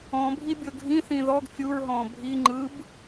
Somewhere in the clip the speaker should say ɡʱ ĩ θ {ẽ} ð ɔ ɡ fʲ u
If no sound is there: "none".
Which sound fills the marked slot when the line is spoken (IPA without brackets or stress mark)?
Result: ĩ